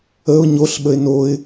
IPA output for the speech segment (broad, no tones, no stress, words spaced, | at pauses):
əʊ̯ ɲoɬ ɓəɪ̯noɪ̯